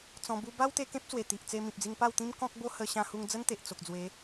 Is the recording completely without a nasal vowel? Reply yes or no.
no